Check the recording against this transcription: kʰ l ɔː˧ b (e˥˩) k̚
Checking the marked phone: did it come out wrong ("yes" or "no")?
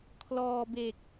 yes